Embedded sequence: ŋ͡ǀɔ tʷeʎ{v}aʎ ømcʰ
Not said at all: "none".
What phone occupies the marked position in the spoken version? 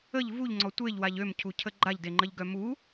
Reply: w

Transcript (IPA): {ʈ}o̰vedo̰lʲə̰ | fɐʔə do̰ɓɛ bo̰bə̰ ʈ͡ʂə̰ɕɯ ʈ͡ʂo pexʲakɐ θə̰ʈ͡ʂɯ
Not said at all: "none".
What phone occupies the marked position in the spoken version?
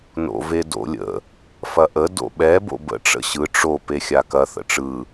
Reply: n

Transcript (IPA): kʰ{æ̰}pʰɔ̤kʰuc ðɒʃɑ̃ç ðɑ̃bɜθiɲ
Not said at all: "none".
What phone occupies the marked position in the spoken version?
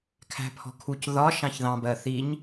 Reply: æ̤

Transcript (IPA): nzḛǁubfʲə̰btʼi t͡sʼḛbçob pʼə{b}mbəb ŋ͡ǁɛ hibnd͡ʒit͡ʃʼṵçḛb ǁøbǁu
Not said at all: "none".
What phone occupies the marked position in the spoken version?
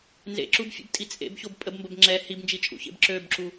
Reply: b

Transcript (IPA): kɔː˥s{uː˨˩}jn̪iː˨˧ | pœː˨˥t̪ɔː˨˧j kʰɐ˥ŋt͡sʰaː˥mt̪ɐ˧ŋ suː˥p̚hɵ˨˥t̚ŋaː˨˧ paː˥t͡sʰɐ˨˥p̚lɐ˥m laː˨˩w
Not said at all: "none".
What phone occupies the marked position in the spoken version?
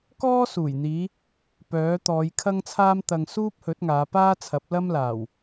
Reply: uː˨˩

